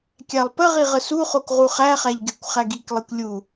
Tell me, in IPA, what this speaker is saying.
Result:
kʲ æ lˠ p ə ʁ i ʁ ə s u χ o k ʁ u χ æ χ æ ʎ ɡ e kʷ χ æ ɡ i k lˠ i kʷ lʲ u

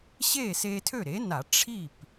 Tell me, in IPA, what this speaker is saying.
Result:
ɕ eː˥˩ s eː˧ tʰ ø˥˩ ɾ e˩˥ n a˧˩˧ ʈ͡ʂʰ i˥˩ p

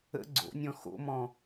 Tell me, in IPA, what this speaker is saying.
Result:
ə̰ ɡ͡ǀ o̰ nʲ ɔ̃ x o̰ m ɔ̃

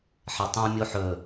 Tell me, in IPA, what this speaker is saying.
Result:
ħ ɛ tˤ ũ mʲ o ħ ɵ

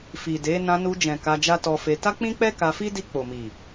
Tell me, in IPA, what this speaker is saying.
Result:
f i˨ d e˨˦ n ã˧ n u˧ d͡ʒ ɛ̃˨ k a˧ d͡ʒ a˦ t ɔ˧ f e˧ t a˦ k͡p ĩ˦ k͡p ɛ˦ k a˧ f i˦ d i˧ k͡p o˨ m i˨

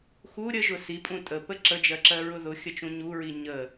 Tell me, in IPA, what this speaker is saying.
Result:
x u ɾʲ ə ʒ ʊ s i pʼ ũ tʼ ə p ə ǁ ə d͡ʒ ɜ ǁ ɜ ɹ ʊ ð ʊ xʲ ə t͡ʃ ũ ɲ u ɹ i ɲ ə

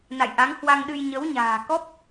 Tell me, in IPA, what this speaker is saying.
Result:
n a̰˧˨ j ʔ a˨˦ ŋ h w a˧ ŋ ɗ ɨ˧ j ɲ ə˨˦ w ɲ a̤ː˨˩ k ɔ˦˥ p̚

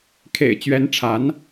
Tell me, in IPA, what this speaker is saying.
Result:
kʰ ḛ˨˩ ɪ̯ t͡ɕ ɥ ɛ˧˥ n ʈ͡ʂʰ a˧˥ n

